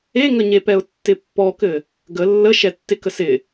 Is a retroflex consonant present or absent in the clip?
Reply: absent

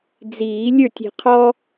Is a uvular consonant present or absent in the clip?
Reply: present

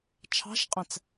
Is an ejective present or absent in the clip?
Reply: present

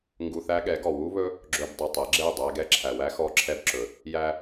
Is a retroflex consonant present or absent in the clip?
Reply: absent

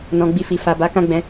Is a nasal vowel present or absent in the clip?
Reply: present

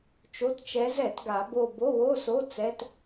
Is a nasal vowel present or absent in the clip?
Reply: absent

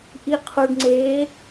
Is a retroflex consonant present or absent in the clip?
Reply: present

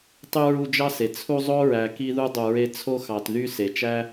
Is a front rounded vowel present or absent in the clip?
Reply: present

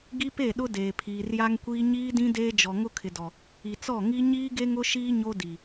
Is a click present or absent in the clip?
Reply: absent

